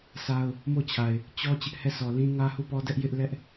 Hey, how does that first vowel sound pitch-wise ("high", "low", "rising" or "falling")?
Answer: high